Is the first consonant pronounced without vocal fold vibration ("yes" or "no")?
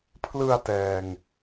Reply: yes